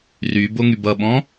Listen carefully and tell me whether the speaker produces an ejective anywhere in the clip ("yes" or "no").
no